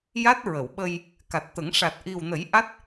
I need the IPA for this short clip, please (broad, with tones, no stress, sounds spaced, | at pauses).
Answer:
j a˦˥ t̚ ɹ ə˨˩˨ w ɓ ə˧ j | k a˨˩ t̚ t̪ ə˨˩˦ ŋ ʂ a˨˩ t̚ ʔ i˨˩ w n ə˨˩˦ j ʔ a˦˥ t̚